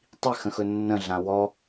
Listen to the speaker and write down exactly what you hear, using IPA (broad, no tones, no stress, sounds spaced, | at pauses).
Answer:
tˤ i x ə̃ x ɵ nː ə̃ ɮ ã w ɔ